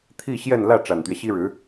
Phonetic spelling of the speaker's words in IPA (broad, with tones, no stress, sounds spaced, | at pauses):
t̪ʰ i˥˧ ɕ j ɛ˥˧ n l ä˥˩ ʈ͡ʂ a˨˩ n t̪ ɥ ɛ˦ ɕ i˥ ɻ ɻ̩˧˥